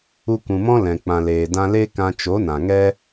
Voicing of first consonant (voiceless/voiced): voiceless